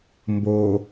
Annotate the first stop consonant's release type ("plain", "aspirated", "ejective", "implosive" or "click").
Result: plain